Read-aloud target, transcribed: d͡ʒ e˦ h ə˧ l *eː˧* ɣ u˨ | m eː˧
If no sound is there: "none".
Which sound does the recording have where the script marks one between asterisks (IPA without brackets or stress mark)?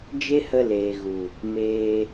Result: eː˨